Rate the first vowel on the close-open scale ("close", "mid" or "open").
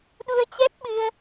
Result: close